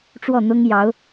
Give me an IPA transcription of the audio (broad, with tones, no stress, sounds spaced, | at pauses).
ʈ͡ʂ w ɔ˥˩ n̪ ʊ˥ ŋ j ɑ˧˥ ʊ̯